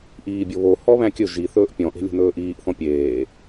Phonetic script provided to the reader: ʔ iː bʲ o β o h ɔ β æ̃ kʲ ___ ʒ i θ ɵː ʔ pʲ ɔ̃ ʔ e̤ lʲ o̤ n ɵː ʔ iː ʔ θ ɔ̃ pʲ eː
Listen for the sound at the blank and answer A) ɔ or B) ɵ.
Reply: B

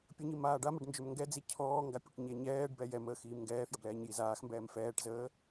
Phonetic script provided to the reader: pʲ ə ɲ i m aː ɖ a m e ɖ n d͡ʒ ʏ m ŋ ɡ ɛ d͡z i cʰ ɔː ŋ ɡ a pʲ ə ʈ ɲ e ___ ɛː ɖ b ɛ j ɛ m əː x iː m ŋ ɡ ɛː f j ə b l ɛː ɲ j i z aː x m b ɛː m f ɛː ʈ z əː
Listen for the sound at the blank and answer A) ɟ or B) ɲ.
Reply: B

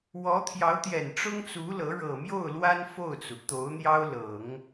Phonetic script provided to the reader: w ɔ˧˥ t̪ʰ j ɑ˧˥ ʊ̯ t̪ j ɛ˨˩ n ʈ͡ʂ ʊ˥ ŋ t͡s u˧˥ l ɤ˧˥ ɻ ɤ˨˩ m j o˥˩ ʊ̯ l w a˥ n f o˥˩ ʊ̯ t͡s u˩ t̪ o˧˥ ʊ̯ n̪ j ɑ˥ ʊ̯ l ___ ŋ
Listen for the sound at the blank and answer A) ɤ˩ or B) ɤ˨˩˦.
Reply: B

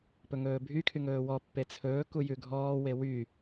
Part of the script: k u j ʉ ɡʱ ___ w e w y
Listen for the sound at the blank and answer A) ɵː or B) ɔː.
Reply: B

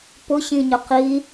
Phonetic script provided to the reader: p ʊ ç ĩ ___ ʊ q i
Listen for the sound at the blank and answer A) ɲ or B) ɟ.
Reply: A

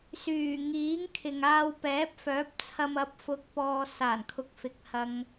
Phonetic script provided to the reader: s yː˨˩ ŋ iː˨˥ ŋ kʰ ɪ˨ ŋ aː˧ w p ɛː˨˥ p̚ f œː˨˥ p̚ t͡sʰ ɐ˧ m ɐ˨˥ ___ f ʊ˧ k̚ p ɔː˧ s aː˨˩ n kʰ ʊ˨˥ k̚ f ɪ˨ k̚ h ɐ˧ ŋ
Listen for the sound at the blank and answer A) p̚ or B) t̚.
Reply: A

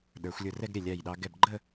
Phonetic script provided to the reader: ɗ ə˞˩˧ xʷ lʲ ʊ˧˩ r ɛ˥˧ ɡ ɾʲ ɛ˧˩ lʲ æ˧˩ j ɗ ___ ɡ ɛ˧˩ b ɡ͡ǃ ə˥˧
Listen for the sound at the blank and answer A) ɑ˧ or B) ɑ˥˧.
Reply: A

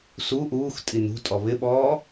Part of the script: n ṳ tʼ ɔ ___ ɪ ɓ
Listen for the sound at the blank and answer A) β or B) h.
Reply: A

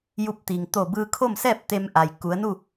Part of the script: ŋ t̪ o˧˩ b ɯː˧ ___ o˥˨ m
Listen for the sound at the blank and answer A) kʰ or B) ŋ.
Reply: A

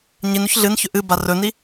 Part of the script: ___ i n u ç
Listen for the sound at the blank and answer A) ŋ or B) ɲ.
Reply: B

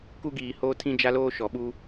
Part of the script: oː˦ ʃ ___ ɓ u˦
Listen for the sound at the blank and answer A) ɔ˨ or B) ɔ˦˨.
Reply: A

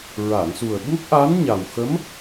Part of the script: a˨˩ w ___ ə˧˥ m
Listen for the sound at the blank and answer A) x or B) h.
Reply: A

